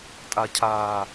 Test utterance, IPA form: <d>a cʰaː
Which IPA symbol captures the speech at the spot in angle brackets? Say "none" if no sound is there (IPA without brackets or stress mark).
tʼ